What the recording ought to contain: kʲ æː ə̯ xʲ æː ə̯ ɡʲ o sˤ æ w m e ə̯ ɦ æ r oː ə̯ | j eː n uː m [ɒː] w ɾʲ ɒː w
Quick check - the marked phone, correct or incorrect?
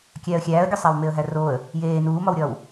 incorrect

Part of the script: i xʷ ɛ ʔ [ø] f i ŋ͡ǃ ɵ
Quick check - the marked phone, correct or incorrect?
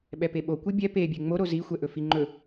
incorrect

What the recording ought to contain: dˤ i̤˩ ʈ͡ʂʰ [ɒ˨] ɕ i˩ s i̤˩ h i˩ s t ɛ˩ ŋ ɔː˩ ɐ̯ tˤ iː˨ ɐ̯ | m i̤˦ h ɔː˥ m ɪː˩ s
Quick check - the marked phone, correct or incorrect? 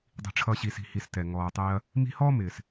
incorrect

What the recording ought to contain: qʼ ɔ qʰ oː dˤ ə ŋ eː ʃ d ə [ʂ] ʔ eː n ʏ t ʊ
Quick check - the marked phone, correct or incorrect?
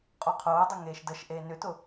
incorrect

